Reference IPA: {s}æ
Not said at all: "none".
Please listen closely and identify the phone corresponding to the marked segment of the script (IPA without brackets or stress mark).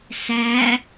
s